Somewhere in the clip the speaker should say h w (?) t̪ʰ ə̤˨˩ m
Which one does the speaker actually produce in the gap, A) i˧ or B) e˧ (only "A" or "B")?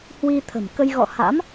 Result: A